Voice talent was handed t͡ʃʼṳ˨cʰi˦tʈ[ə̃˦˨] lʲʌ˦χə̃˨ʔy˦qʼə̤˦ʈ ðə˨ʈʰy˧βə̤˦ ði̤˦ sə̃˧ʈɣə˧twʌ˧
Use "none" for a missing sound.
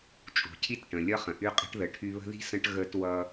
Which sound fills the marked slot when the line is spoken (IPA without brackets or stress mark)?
ə̃˨